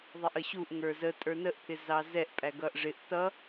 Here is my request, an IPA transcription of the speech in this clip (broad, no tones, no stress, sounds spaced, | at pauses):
ðˤ ɛ ʔ ə ɕ u ʔ ŋ ə˞ z ə tʼ ə˞ n ə ʔ pʰ ɪ z ɑ z ɛ ʔ pʼ æ ɡ ʌ ʔ ʐ ɪ ʔ t ʌ